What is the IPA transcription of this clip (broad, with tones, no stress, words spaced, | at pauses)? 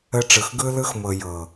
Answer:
ə˦ ʈ͡ʂɯ˨xɡɯ˦lɯ˦xmɤ˨ jɤ˨